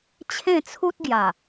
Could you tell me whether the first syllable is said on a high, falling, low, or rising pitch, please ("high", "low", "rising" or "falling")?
falling